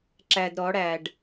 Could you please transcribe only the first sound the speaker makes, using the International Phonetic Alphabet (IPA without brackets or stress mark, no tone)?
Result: ǁ